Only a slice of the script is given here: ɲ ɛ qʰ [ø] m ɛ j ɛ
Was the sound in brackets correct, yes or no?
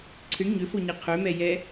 yes